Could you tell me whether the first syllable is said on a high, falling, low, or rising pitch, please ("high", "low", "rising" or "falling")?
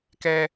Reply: high